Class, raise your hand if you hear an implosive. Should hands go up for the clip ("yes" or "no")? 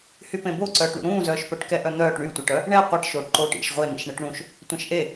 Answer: no